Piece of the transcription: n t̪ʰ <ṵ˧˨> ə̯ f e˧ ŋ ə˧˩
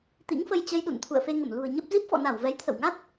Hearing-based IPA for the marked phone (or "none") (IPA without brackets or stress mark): ṵ˧˨